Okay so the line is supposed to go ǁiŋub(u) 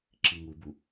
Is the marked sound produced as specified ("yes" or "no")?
yes